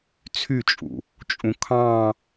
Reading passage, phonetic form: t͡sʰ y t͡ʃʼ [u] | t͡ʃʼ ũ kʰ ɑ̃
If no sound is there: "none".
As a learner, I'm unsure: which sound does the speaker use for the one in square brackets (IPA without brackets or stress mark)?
ṵ